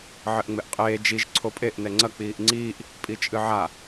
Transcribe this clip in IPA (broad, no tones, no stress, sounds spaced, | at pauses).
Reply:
ʕ ɘ ʔ ŋ͡m e ʔ qʼ eː d͡ʒ i ʒ ǀʰ o pʼ e ʔ n ɛ ŋ͡ǀ ɐ k͡p iː ʔ ŋ͡ǀ iː ʔ | pʼ i t͡ʃʼ ɨ ʕ a